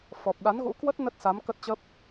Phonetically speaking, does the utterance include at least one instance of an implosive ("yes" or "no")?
yes